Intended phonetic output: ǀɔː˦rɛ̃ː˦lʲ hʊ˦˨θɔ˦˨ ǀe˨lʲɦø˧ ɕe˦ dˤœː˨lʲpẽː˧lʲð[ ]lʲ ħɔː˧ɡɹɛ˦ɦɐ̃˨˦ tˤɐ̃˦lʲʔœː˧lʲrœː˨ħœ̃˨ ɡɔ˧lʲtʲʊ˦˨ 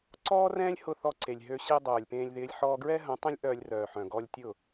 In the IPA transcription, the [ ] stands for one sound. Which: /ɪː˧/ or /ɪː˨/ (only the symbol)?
ɪː˧